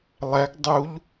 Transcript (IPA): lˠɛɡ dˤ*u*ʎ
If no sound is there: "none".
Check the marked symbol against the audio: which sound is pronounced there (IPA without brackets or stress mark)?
u